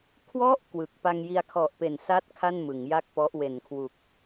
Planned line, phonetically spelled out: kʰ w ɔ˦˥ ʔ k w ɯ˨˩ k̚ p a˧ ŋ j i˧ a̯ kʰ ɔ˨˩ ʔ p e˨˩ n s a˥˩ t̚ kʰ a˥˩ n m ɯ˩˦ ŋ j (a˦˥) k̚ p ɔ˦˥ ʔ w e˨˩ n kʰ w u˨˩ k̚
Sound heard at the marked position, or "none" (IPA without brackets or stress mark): a˥˩